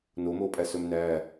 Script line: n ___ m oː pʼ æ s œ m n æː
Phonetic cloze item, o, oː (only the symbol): o